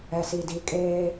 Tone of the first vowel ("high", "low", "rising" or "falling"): low